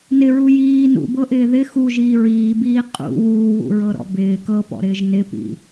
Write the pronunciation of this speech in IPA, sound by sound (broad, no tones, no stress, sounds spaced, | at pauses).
n ɪ ɹ u j iː n ṵ b ɤ ʔ ɪː ð ɪ x u ʒ iː ɹ iː b iː qʼ ṵ w uː w ṵ ɹ ɤ ɾ ɔ̰ b ɪː k ɤ p ɔ̰ ɾ ɪː ʒ n ɪ p ḭ